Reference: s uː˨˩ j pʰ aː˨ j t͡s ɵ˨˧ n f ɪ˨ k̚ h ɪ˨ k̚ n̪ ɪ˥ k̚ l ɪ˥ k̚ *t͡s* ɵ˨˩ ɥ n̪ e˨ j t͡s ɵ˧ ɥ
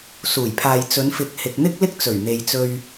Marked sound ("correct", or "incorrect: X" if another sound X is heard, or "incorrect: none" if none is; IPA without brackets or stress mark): correct